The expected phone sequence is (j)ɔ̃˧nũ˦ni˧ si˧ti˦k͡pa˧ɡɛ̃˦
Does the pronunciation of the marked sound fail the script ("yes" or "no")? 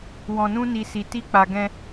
yes